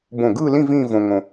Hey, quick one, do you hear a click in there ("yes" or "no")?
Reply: no